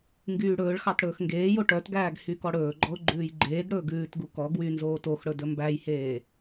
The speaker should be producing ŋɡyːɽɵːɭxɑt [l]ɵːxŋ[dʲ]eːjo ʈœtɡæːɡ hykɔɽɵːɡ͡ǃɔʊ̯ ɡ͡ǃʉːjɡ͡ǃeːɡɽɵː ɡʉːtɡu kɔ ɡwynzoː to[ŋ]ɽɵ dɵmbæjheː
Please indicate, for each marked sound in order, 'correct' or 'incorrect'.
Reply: incorrect, incorrect, incorrect

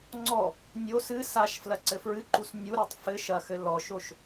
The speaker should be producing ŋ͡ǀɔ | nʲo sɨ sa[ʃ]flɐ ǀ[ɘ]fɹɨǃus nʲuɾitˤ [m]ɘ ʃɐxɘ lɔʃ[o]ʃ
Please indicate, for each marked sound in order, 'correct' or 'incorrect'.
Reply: correct, correct, incorrect, correct

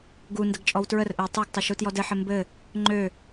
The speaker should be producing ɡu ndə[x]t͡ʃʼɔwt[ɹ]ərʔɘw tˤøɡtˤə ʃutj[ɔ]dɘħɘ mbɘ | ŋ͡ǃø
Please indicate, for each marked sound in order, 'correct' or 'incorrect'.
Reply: incorrect, correct, correct

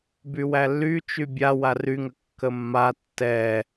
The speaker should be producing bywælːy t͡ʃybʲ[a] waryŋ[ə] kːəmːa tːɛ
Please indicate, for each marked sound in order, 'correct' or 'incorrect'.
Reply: correct, correct

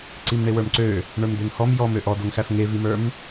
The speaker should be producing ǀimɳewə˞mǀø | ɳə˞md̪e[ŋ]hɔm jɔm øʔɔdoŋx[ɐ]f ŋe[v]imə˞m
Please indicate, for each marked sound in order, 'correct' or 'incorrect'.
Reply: correct, incorrect, correct

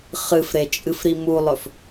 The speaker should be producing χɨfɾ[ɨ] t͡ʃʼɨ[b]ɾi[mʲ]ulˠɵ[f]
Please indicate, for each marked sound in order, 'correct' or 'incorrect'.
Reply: incorrect, incorrect, incorrect, correct

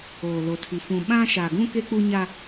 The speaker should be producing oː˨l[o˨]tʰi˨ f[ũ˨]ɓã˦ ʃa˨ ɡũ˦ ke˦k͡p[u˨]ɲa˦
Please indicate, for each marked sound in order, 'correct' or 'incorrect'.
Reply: correct, correct, incorrect

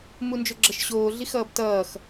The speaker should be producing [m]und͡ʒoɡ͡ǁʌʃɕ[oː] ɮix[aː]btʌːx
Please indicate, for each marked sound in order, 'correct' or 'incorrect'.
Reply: correct, correct, incorrect

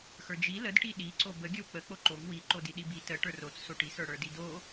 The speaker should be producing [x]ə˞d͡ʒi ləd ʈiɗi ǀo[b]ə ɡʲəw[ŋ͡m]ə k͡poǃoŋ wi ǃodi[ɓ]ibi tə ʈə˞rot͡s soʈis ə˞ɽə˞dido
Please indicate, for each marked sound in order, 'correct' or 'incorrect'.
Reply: correct, correct, incorrect, incorrect

